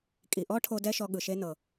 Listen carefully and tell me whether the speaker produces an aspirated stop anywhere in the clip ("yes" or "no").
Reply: yes